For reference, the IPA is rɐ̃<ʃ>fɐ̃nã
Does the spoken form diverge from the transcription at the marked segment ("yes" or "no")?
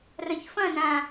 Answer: yes